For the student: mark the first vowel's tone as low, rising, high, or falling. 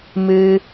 high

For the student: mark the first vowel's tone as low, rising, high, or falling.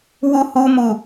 high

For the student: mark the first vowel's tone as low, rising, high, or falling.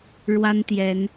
high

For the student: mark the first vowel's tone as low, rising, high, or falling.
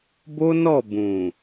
high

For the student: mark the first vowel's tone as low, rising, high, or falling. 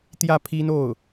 falling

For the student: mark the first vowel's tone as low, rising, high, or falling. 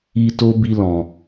high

